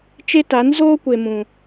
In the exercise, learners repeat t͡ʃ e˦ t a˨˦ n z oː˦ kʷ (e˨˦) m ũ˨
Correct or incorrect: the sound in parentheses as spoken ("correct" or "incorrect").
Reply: incorrect